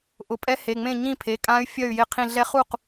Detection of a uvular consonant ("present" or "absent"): present